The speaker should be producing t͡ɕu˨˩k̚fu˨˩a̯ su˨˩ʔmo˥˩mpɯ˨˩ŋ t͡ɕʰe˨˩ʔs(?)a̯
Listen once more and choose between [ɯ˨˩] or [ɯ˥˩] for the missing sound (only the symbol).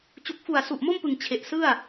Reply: ɯ˥˩